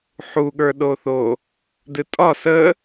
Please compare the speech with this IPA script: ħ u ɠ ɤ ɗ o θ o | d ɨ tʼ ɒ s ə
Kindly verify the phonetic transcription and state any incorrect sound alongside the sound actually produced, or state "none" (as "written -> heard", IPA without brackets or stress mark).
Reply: ɤ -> ə˞